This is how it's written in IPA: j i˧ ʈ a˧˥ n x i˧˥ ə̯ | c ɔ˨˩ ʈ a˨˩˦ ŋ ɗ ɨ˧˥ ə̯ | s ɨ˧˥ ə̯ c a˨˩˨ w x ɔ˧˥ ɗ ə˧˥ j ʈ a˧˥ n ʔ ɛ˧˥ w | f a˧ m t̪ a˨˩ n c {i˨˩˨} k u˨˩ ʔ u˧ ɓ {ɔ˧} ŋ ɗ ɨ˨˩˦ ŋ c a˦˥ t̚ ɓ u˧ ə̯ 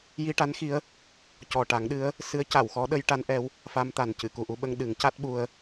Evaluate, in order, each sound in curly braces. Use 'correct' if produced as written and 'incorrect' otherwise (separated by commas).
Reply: incorrect, incorrect